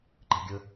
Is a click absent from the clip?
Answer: no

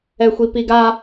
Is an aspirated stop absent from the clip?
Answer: yes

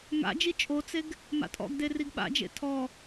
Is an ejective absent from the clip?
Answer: no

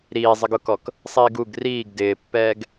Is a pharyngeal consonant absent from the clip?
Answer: yes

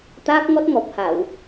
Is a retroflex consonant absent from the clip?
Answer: yes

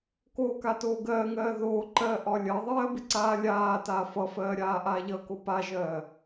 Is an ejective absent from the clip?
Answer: yes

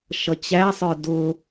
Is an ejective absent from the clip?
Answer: yes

